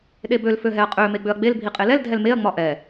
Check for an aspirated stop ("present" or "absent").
absent